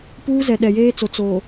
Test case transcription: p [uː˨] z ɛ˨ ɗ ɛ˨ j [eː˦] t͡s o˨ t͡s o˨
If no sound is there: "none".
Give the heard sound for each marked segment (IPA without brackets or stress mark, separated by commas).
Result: uː˦, eː˦